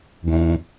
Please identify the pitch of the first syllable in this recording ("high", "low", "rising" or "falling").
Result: low